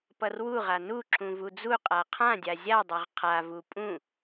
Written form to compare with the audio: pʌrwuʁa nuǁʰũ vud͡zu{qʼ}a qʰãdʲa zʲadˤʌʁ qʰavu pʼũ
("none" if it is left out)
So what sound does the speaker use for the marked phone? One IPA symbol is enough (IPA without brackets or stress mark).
qʼ